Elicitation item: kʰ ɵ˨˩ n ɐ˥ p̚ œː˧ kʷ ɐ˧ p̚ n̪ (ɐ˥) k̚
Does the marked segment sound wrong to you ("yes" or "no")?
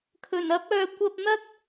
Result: no